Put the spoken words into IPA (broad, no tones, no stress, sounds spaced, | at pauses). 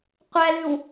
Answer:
qʷ æ l ʉ w